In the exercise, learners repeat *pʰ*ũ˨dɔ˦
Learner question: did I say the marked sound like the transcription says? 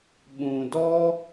no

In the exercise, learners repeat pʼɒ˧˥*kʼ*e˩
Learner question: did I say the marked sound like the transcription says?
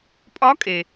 yes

